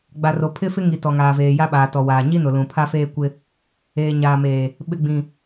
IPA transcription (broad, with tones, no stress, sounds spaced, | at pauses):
ɡ͡b a˨ r o˨ pʰ ɪ˦ f ɪ˦ ŋ i˨ t ɔ˨ ŋ aː˨ v eː˨ j a˦ ɓ aː˨ t ɔ˨ w aː˨ ɲ i˦ n ʊ˨ l ũ˨ pʰ a˦ f eː˦ kʷ ɪ˦ | eː˨ ɲ aː˨ m eː˨ | ɓ ɪ˨ ɡ͡b ĩ˨